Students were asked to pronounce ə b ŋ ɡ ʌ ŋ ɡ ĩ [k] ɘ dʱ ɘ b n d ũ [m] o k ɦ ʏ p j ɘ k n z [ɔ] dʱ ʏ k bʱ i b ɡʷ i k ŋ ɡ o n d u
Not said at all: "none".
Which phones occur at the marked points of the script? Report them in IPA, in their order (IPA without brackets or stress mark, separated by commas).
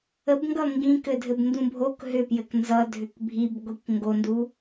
k, bʱ, ʌ